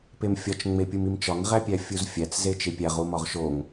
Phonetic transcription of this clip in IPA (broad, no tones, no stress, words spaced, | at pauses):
pemfʲɒt͡ʃ ŋ͡mepʲumimt͡ʃɒŋ ʁæpʲæfʲuzfʲæt͡s zet͡ʃepʲæʁ umɒʁʃoŋ